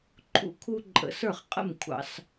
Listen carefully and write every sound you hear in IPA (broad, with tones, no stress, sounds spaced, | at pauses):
ǃʰ ṵ˦ kʰ u˦ ǃʼ ə̰˨˥ s ə˞˥˩ χ qʼ ə̰˥˩ m kʷʰ ɑ̰˧˩˧ s